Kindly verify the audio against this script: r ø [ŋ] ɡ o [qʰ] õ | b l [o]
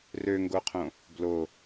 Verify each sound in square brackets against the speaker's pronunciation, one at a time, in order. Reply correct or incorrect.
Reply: correct, correct, correct

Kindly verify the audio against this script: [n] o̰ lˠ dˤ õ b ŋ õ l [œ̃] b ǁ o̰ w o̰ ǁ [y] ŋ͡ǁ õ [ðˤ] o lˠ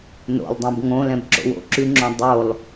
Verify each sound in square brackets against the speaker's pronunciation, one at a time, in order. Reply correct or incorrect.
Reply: correct, incorrect: ɛ̃, correct, incorrect: dˤ

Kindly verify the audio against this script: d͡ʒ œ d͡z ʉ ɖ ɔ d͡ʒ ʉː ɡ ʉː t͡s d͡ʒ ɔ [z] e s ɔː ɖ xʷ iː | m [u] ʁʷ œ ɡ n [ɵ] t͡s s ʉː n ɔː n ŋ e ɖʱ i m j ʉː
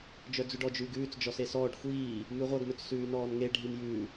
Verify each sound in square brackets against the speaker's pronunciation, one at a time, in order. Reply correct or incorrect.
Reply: incorrect: s, incorrect: ʉ, correct

